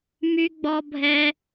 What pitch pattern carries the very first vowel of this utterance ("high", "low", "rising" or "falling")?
high